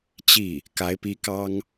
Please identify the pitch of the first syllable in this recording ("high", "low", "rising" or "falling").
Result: falling